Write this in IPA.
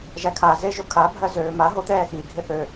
ʒ æ kʰ a z e ʒ o kʰ a bʱ ɜ z øː m a ɦ o t̪ ɛː x i ɡʱ ɪ θ ø

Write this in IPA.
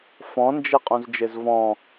f ɔ̃ n d͡ʒ e qʼ ũ z d͡ʒ e z v ɔ̃

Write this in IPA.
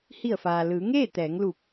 h i˧˩ ə̯ f aː˩ l ɯː˩˧ ŋ eː˥˨ t̪ ɛː˩˧ ŋ l u˧˩ p̚

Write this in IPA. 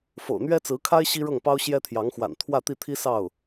f o̰˨˩ ʊ̯ n̪ ɥ ɛ˥ t͡s ɹ̩˧˥ kʰ a˥ ɪ̯ ɕ i˥ ɻ ɤ˥˩ ŋ p ɑ˥ ʊ̯ ɕ j ɛ˥ t̪ʰ j ɑ˧˥ ŋ x w a̰˨˩ n t̪ʰ w ä˥˧ t̪ i˥˩ t̪ʰ i˥ s ɑ˥˩ ʊ̯

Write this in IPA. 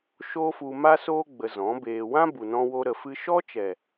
ʃ oː˦ f u˧ m a˦ s oː˦ ɡ͡b ə˧ z ɔ̃˨˦ b eː˧ w ã˦ b u˨ n ɔ̃˧ w o˧ ɾ ə˨ f ɨ˧ ʃ ɔ˦ t͡ʃ ɛ˨

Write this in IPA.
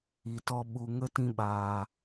i˨ t ɔ˧ ɓ u˨ ŋ ə˦ t ĩ˧ ɓ aː˨

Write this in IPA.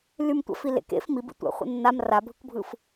l y m tʷ a̰ f i l ḛ k ḛ f m i b ḭ tʷ a̰ χʷ ḛ nː a m r a bʱ ɯ k bʱ ɯ f

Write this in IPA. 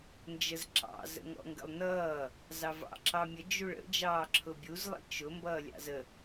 n d͡ʒ ə z ǁ ɑ̰ z ə̰ ŋ ɔ̰ ŋ ɡ ə̰ lˠ n ʌː | z ɑ v ɑ̰ ǁ ɑ mʲ ə d͡ʒ u ɭ ə̰ d͡ʒ ɑː ǁʰ ʊ bʲ u z lˠ ḭ t͡ʃ ʊ m b ʌː lʲ ɑ̰ z ə

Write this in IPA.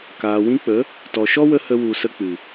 k aː˨ w ĩ˦ k͡p ə˨˦ | t ɔ˨ ʃ ɔ˦ w ə˧ h ə˧ w u˨ s ə˧ k͡p ɨ˨

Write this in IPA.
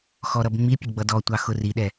x ɔ ɾ ʌ b ŋ͡m i pʲ ə ɡ͡b ʌ d ɔ tʷ ɑ x ʊ r i ɗ ɛ

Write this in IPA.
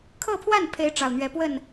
kʰ ɤ˥˧ pʰ w a˥˩ n pʰ e˧˥ ɪ̯ ʈ͡ʂ ɑ˨˩ ʊ̯ n̪ ɥ ɛ˧˥ p w ə˥˩ n

